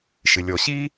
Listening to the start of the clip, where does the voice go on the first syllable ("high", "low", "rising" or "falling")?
low